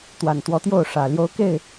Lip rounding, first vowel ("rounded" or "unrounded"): unrounded